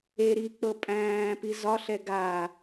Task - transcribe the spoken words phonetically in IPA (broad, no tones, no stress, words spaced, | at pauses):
e ɾik͡pɤ pʼæ̃ːpi zɒɬɛ ɡaː